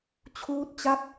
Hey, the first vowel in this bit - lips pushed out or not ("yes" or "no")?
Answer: yes